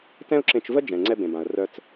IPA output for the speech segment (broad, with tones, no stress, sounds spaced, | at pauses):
t ɛ̃˥ ʊ̯ ǁ ẽ˧ t͡ʃ v ə˥ d͡ʒ ɛ̃˩ ŋ͡ǀ ɛ˧ b ẽ˩ b ã˩ ə̯ r œ˧ t͡s